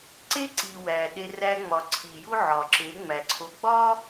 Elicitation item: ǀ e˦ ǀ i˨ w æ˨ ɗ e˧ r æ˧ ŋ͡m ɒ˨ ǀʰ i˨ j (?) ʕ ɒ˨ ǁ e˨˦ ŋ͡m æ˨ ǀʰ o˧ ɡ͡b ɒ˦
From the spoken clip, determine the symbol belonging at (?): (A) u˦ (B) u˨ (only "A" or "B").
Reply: A